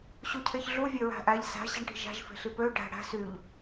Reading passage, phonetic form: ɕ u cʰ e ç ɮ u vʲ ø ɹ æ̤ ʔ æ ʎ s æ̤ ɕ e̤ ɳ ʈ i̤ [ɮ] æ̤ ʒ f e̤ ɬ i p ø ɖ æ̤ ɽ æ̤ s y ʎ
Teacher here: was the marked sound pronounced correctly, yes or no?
no